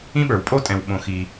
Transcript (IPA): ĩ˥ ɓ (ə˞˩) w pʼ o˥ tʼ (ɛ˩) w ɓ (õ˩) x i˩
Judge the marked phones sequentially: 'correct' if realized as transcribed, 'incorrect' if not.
correct, incorrect: ɛ̃˩, correct

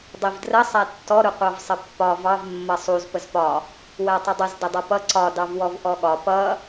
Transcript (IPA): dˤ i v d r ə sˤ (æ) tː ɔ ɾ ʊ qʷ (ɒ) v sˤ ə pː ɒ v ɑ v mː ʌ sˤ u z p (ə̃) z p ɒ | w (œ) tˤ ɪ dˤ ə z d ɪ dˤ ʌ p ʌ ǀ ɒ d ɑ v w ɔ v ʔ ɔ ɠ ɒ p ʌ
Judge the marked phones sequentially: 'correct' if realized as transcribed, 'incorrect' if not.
correct, incorrect: ɑ, incorrect: ə, incorrect: æ

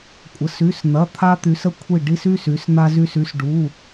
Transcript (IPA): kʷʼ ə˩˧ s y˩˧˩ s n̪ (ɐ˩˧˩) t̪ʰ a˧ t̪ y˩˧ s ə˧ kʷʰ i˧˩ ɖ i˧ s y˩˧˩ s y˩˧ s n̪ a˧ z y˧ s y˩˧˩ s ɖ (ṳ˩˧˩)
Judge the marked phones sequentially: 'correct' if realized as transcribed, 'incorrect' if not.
correct, incorrect: u˩˧˩

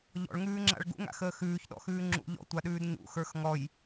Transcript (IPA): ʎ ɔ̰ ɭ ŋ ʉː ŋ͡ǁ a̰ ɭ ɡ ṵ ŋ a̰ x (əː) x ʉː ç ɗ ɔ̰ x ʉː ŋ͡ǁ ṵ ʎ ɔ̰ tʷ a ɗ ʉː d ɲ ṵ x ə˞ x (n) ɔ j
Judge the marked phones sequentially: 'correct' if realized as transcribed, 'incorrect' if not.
correct, incorrect: ŋ

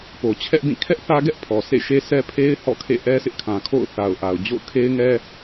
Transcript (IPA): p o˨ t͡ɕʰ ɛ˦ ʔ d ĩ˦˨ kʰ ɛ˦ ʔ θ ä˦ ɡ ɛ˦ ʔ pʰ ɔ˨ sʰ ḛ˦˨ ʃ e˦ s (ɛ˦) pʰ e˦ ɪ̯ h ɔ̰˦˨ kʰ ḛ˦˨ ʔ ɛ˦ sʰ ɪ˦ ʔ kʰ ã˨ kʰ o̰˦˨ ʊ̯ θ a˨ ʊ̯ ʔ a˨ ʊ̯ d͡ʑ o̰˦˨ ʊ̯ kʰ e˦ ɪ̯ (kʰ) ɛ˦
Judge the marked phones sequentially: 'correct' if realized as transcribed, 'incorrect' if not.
correct, incorrect: ŋ

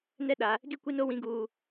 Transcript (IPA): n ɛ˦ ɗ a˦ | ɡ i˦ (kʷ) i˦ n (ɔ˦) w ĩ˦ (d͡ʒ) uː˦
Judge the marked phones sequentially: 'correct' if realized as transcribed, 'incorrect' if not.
correct, incorrect: o˦, incorrect: ɡ

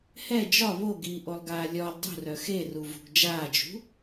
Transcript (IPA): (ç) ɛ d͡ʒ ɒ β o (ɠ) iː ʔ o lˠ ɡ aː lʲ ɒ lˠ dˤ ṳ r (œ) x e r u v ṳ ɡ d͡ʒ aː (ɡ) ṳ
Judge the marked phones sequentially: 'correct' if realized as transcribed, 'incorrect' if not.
incorrect: h, incorrect: ɡ, correct, incorrect: d͡ʒ

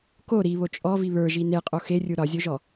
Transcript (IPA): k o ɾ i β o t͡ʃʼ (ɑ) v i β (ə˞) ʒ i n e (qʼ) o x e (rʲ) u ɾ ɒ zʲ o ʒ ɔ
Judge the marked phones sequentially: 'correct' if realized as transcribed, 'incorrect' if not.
incorrect: ɔ, correct, correct, correct

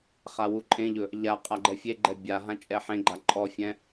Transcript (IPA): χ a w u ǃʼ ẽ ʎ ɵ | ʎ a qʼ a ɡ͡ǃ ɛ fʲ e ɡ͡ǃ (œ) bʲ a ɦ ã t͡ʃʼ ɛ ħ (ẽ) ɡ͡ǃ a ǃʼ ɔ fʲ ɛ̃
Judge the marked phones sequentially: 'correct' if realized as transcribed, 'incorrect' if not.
incorrect: ɛ, correct

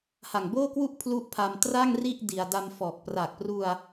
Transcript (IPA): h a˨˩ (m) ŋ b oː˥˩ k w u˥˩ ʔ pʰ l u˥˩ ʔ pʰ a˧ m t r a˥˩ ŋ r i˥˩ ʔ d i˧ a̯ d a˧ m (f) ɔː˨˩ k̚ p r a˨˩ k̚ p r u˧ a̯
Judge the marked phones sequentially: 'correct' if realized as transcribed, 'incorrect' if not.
incorrect: none, correct

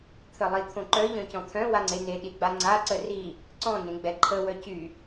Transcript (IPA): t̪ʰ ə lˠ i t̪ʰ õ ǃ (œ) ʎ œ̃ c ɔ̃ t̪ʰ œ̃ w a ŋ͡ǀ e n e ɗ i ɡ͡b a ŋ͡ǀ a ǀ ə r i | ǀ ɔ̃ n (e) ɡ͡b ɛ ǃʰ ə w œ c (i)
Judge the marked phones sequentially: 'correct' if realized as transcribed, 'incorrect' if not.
correct, incorrect: ẽ, incorrect: y

